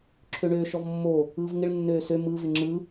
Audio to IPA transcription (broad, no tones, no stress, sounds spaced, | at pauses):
ǁʰ ø ɳ øː ʃ ɔ v mː o | ɯː v ŋ ɪ ɭ nː øː s ø m ɯ v ɪ ŋ͡ǁ ɯ